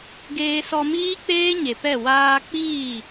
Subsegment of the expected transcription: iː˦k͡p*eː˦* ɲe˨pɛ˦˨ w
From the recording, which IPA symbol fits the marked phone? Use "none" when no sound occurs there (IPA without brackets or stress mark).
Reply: eː˦